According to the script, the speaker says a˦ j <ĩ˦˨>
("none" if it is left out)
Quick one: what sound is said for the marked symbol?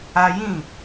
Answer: ĩ˦˨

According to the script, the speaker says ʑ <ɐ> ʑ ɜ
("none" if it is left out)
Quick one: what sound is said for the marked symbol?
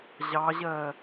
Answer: ɑ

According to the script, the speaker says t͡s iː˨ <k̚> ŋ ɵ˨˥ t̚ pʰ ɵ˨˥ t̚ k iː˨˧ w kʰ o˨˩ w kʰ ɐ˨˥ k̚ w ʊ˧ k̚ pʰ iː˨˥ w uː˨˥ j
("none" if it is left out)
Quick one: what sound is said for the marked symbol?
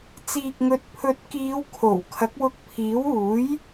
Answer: k̚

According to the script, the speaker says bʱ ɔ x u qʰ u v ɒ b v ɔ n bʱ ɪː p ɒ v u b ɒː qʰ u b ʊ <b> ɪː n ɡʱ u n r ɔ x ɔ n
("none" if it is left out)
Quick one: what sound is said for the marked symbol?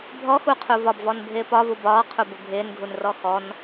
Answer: bʱ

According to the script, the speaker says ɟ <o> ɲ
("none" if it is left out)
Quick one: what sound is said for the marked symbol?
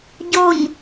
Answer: o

